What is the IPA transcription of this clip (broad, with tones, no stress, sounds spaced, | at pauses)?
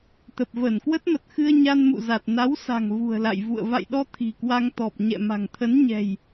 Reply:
t̪ ə˨˩ p̚ v ə˧˩ n k w ə˦˥ t̚ m ə˨˩ t̚ x ɨ˧ ə̯ ɲ a˧ n m ṵ˧˨ z a˨˩ t̚ n a˨˦ w s a̤˨˩ ŋ v ṳ˨˩ ə̯ l a̰˧˨ j v ṵ˧˨ ə̯ v a̰˧˨ j ɗ ɔ˧ t̪ʰ i̤˨˩ k w a˧ ŋ t̪ ɔ˨˩ p̚ ɲ ɛ̰˧˨ m a̤˨˩ ŋ t̪ʰ ə˨˦ n ɲ ɛ̤˨˩ j